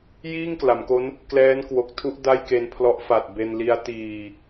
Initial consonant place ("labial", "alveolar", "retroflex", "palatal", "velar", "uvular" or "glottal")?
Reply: palatal